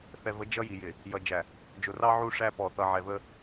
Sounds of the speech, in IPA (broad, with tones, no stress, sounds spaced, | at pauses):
θ ɛ˨ v ə˨˦ d͡ʒ ʌ˦ j i˨ j ɪ˨ | j ʌ˨ d͡ʒ æ˨ | d͡ʒ ʊ˨ r ɑ˦ ʕ u˦˨ ʂ æ˦ p ɔ˨ θ ʌ˨ ʕ ɛ˨ v ə˦